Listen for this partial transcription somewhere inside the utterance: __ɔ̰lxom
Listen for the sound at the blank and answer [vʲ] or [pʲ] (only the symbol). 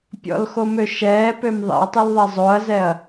pʲ